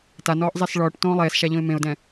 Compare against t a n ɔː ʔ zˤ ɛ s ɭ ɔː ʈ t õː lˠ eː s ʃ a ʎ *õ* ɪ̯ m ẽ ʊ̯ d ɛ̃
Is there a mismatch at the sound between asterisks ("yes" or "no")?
no